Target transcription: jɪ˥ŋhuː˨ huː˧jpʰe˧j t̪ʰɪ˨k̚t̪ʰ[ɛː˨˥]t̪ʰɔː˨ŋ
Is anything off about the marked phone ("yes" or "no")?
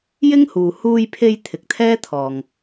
yes